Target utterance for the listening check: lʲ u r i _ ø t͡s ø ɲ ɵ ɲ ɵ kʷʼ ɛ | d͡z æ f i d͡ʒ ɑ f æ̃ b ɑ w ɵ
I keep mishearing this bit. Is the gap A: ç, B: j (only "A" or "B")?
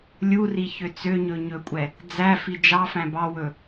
A